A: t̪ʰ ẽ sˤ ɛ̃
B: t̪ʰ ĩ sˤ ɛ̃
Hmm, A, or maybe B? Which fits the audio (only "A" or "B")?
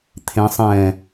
A